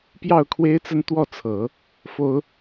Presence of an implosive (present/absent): absent